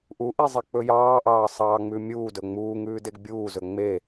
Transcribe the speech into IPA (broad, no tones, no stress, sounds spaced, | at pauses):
ʔ u ʔ i zˤ i k͡p ɵ j ɑː ʔ ɑː sˤ ɑː ŋ͡m ʉ mʲ uː d ɵ ŋ͡m uː ŋ ʉː d e ɡ bʲ uː z ɵ ŋ͡m e